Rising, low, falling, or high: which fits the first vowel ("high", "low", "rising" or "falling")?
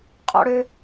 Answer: high